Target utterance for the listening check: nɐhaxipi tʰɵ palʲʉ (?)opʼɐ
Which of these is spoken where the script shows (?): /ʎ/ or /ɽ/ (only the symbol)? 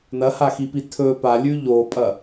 ʎ